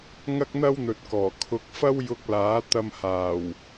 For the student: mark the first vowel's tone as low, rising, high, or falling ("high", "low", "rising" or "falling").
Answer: high